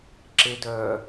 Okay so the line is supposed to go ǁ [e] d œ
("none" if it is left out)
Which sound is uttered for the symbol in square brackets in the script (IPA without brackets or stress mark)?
e